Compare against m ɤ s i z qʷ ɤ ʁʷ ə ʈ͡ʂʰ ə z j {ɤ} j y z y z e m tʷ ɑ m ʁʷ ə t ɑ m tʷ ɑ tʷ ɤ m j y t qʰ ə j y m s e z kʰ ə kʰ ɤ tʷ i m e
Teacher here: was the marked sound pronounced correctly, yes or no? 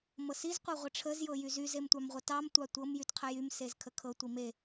yes